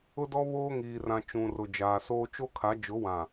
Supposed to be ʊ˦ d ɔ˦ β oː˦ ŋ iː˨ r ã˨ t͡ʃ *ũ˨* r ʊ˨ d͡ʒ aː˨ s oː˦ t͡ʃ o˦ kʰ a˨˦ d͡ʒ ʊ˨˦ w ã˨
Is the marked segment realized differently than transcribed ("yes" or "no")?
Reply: no